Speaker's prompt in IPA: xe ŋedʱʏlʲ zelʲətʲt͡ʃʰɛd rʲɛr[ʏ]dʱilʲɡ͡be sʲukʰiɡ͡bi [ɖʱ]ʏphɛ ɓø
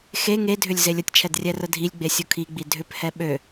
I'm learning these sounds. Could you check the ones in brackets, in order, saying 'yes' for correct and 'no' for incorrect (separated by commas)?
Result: no, no